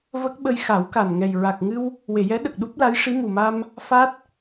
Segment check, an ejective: absent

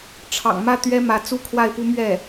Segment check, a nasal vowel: absent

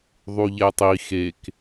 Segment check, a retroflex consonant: absent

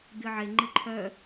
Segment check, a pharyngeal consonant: present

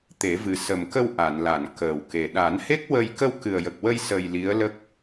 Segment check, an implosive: present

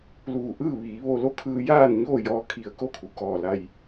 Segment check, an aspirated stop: present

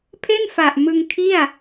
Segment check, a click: absent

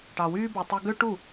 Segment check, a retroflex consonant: present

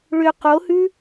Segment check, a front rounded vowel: present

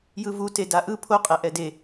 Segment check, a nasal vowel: absent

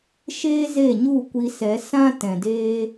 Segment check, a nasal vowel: present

